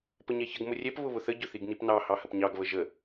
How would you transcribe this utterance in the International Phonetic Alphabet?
p ə ɲ ɛ ç ə ɡ m ʊ rʲ ɛ p β ʊ β ʊ θ ə ɟ ʊ θ i ɡ n i p n ɑ h ɑ h ə p ɲ ɑ ɡ β ə ʒ ə

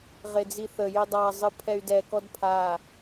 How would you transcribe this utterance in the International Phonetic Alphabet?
ʁ e d͡z i θ ə j i dˤ a zˤ ɨ pʰ ɛ y̯ d ɛ k ɔ d pʰ a

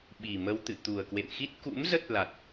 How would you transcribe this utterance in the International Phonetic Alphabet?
ɓ i˨˩ m ə˧ w t̪ ɨ̰˧˨ t̪ u˨˩ ə̯ k w ḛ˧˨ m x i˦˥ t̚ k ṵ˧˥ m z ə˦˥ t̚ l a˨˩ t̚

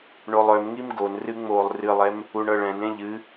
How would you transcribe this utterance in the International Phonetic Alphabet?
ɳ o lˠ œ m ŋ i m ɡ o n r ɨ ŋ͡m oː lˠ r ɨ lˠ ɛ m | u ɳ ɤ ɭ ɛ̃ n ẽ ʎ ɨ

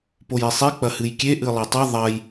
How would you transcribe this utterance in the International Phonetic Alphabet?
p o j e sˤ i k͡p ɐ h ɨ j kʲ e ʔ ɨ lˠ e tˤ ɨ ðˤ ɐ j

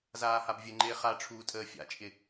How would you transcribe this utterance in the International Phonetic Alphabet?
z aː h a b vʲ ə ŋ͡ǃ ɪː χ a ʈ͡ʂʰ uː tʼ əː fʲ a̰ t͡ʃʼ ɪ

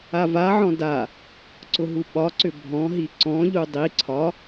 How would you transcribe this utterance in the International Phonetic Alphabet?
a v a ʕ ɔ̃ d a | ǀ ʊ ɦ u ɓ ɒ ǀ ʏ bʱ ɔ̃ ɦ i ǀ ɔ̃ ʎ u dˤ i ǀʰ ɒ

